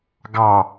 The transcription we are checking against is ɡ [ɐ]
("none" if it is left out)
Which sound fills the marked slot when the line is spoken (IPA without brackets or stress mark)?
ɑ